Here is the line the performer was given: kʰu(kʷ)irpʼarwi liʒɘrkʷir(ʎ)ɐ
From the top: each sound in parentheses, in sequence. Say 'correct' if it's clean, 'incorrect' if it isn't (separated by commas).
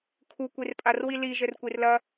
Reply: correct, incorrect